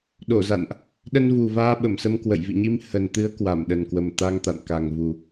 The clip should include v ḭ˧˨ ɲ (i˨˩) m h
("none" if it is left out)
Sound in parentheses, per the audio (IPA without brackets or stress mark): i˧